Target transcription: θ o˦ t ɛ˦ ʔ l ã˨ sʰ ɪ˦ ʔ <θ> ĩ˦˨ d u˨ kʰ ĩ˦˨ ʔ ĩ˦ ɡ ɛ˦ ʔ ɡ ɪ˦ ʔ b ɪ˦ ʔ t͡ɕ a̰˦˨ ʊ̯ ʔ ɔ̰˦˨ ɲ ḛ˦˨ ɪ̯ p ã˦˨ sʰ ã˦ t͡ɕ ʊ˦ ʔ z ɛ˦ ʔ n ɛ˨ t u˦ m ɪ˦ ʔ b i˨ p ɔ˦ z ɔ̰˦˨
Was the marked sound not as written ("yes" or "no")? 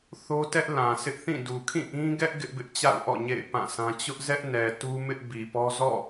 no